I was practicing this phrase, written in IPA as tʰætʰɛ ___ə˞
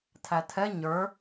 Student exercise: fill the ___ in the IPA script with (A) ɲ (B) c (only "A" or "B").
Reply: A